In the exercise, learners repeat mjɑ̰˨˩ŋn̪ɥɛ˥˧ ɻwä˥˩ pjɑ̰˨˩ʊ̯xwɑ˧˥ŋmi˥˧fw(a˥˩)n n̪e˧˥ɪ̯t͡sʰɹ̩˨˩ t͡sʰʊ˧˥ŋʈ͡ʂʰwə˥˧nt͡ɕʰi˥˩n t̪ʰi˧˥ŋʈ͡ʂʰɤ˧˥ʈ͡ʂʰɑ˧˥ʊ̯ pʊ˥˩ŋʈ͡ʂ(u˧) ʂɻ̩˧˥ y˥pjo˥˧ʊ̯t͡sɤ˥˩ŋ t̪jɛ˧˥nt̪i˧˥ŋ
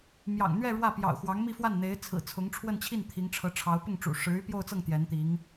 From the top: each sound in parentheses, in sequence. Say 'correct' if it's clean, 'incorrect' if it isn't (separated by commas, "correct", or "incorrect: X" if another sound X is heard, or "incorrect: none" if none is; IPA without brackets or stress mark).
correct, incorrect: ṵ˨˩